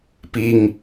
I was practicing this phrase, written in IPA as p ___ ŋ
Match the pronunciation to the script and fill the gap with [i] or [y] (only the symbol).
i